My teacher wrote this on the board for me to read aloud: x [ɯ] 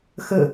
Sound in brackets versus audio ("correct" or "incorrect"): incorrect